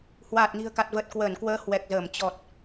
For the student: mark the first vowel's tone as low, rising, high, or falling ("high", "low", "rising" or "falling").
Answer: low